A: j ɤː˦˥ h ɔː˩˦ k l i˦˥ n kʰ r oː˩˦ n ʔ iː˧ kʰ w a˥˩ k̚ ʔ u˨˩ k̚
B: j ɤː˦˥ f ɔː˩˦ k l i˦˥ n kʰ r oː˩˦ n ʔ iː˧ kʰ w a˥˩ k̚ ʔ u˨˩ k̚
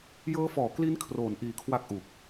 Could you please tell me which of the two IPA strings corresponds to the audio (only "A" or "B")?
B